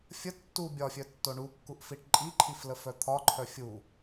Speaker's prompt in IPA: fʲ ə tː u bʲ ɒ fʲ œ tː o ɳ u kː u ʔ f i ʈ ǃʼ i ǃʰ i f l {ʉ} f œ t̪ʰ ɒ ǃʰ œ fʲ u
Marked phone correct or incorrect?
incorrect